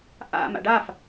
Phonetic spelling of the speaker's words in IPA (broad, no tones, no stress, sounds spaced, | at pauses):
ʔ a̰ m a̰ ɖ a f